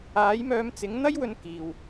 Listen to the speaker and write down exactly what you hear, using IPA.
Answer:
aː˨˥ j m œː˧ m t͡s ɪ˨˥ ŋ n̪ ɐ˥ j w ɵ˧ n k iː˨ w

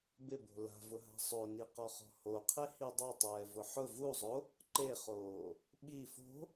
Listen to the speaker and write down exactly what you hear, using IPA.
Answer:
b ɪ b o̤ l a̤ v ʊ ɦ a̤ sˤ o n i q ɔ χ ɔ̤ h o qʰ e h i dˤ a tˤ ɛː v ʊ ħ ʊ v u zˤ o | ǃ e χ oː | ɓ i f o̤

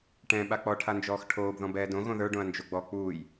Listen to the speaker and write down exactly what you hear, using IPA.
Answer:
ʈ ɛ̃ ɓ a k͡p ɔ ʈʰ a n d͡ʒ ɔː x ʈʰ oː b ð ɔ̃ b ɛː d õ ɣ õ ð ə˞ ɖ õ ɐ̯ n d͡ʒ o ɡ͡b ɔ k͡p uː j

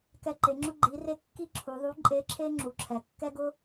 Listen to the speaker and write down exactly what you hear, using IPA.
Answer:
k ɛ˧ ǃ e˩˧ ŋ͡ǁ ʊ˥ ɡ͡ǃ i˩˧ r e˧ kː i˥ ǁʰ u˩˧ ðˤ u˧˥ ǃʼ e˧˥ ǁʰ e˥ ŋ͡ǁ u˩ ǁʰ ɛ˩ kː ɛ˥ ɡ ʊ˥

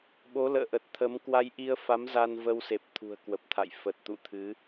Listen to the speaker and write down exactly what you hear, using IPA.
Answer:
ɓ o˨˦ l ə̰ː˧˨ ʔ ə˨˩ t̚ t̪ʰ ə˨˦ m k w a˧ j ʔ i˧ ə̯ f a˨˦ m z a˧ n v ə˧ w s e˨˩ p̚ t̪ʰ ṳ˨˩ ə̯ k w ə˨˩ p̚ t̪ʰ a̰˧˨ j f ə˨˩ t̚ t̪ ṵ˧˨ t̪ʰ ɨ˨˦

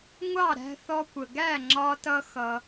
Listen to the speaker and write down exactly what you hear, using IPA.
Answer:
ŋʷ ɑ˥˩ ɾ æ̤˧ θ ɔ˧ kʷ ə˩ ɡ æ˥˩ ŋ͡ǁ ɒ˧ t ʌ˧ x ʌ˩

